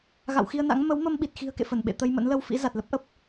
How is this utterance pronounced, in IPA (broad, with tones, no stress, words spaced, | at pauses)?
ɣa̰˧˨wxi˧ə̯na̰˧˥ŋ mə˨˦wmə˧m ɓi˨˩t̚xi̤˨˩ə̯ kḛ˧˨fə˧˩n ɓḛ˧˨t̪ə˧jmə̰˧˥n lə˧wfḭ˧˥ za˨˩t̚lə˦˥p̚ʔə˦˥p̚